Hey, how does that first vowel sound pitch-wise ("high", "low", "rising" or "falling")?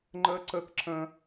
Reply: high